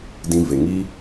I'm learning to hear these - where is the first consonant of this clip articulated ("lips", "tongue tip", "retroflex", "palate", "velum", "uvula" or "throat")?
tongue tip